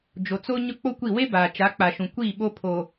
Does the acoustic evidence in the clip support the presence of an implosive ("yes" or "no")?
yes